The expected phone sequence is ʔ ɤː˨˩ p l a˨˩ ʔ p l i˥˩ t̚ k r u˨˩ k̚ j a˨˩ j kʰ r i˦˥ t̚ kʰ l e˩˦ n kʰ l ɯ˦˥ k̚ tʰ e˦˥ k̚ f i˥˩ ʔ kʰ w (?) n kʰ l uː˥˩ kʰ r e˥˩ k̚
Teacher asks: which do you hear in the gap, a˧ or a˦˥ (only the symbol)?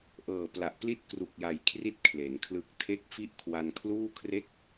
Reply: a˧